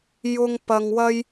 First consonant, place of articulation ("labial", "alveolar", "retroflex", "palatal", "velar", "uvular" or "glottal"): palatal